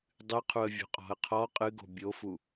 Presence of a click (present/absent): absent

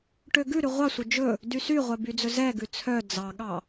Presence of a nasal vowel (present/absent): absent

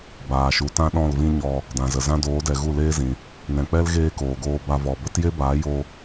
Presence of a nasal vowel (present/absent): present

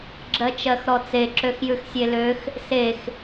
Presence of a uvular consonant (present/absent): absent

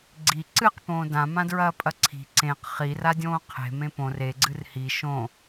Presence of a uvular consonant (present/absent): present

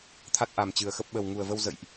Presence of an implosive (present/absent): present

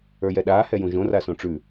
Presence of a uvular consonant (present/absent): absent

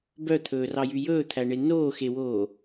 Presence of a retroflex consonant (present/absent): present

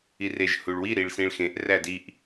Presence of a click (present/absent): absent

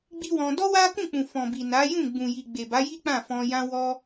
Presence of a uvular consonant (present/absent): absent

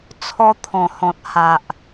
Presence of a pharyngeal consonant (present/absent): absent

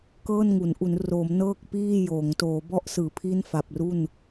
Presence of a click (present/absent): absent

